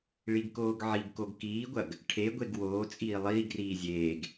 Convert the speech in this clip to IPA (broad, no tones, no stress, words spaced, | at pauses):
ɭiɡkoːɡʕiɡkoɡ kiːɡʷɐɡ | ʈʰeɡʷeɡ woː t͡sʼiːlˠiːɡriː zʲeːɡ